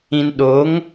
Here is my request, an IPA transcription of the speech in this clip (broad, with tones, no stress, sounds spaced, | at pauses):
ĩ˨ n ɗ o˨˦ ŋ